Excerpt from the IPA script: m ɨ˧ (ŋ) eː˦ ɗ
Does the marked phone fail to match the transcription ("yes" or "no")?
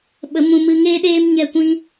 no